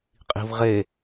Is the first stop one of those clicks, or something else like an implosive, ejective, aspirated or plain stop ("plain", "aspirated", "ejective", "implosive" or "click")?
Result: ejective